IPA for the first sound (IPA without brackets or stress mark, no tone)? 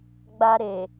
ɡ͡b